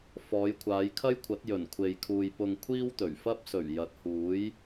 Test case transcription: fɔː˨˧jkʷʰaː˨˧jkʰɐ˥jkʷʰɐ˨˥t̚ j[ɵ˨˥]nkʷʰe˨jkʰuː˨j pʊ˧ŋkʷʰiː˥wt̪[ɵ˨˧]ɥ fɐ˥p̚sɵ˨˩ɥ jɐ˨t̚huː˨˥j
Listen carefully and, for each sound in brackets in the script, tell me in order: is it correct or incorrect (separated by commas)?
incorrect, incorrect